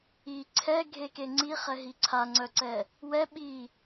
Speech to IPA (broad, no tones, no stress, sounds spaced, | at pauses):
i ǀʰ ɛ ɡʱ e k e ŋ͡ǀ i χ ɛ ɦ i ǀʰ a ŋ͡ǀ œ ǀ ɛ | w ɛ ɓ i